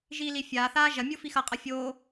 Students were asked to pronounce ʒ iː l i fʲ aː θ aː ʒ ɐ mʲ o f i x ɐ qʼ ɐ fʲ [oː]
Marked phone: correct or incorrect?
correct